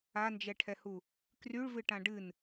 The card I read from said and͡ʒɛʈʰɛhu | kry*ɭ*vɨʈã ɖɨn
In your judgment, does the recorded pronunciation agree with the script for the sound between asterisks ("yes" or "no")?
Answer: yes